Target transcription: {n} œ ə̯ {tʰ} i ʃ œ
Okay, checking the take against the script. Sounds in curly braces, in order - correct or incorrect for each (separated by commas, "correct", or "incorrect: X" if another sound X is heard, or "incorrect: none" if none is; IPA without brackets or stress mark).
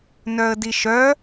correct, incorrect: d